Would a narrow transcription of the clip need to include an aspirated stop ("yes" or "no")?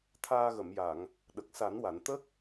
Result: yes